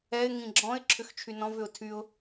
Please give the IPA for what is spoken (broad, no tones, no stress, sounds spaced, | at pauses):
ɛ ɪ̯ ŋ ĩ ɡ͡ǁ ɔ̃ ɪ̯ ǁʰ ʏ x t͡ʃʰ y n ɔ̃ v ʏ ʊ̯ tʰ y ʊ̯